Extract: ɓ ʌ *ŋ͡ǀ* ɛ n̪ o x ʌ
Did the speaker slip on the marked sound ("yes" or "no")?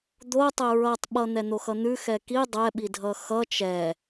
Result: yes